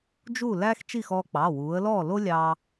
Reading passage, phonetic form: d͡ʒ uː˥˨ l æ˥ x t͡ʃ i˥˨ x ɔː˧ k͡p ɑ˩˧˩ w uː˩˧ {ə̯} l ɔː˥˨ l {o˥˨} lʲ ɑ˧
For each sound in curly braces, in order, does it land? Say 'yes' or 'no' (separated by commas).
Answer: yes, no